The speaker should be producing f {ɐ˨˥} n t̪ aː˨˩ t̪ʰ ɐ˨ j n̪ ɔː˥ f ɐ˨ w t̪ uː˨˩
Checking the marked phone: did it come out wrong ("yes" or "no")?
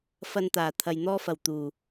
yes